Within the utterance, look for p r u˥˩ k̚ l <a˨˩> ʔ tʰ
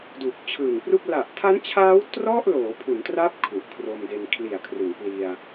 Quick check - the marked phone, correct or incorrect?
correct